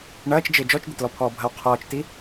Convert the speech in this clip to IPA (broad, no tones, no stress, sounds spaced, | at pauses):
ɳ ɐː t͡ʃ d͡ʒ ɪː d͡ʒ ɔ t͡ʃ d̪ ɪ t l ɔ pʰ ɔː bʱ ɐ w qʰ ɔː t͡ʃ t i